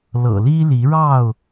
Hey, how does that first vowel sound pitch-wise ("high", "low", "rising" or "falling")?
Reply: low